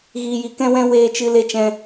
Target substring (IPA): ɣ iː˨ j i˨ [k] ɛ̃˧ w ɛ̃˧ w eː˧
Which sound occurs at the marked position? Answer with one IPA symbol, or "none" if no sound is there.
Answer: k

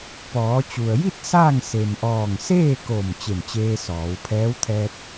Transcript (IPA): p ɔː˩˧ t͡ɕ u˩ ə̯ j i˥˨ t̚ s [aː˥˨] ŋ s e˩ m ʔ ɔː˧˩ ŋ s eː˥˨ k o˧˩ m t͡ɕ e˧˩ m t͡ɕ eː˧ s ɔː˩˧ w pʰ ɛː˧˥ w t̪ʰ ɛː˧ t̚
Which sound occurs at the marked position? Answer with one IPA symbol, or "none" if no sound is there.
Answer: aː˥˨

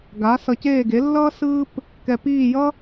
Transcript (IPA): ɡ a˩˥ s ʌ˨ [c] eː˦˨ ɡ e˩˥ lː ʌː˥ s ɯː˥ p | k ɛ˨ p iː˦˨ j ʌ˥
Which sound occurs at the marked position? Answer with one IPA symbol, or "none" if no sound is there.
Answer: c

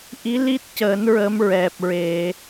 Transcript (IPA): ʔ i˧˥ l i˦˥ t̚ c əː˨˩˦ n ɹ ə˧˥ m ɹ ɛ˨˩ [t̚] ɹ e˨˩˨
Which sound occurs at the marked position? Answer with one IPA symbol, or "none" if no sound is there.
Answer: p̚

